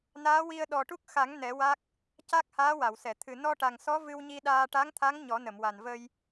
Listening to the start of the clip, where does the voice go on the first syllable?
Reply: rising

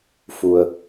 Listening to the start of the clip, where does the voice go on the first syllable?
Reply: low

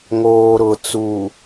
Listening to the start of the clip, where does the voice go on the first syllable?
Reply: low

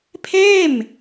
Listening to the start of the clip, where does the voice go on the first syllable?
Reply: falling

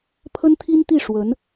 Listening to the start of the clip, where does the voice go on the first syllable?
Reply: high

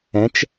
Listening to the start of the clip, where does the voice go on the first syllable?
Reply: rising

